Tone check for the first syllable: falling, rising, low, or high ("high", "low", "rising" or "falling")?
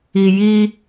low